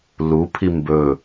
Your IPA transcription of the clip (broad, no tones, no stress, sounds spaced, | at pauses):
l u pʰ i m b ɵ